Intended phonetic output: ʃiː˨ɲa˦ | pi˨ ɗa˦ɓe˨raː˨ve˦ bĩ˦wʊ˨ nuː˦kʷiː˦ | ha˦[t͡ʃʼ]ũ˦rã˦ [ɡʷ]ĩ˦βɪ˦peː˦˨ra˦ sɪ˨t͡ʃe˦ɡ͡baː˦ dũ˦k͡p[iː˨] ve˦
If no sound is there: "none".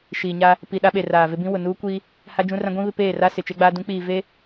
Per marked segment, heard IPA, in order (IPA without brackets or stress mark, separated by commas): d͡ʒ, ɡʷ, iː˨